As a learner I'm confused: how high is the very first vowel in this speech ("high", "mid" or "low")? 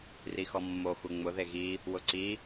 high